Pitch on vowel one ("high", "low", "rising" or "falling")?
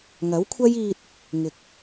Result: rising